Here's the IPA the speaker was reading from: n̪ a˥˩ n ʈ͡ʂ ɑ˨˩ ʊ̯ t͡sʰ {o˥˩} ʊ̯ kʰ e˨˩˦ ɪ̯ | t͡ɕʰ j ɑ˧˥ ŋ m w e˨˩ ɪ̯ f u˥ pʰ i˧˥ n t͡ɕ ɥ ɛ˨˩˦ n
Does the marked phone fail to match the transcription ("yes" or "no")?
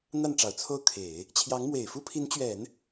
no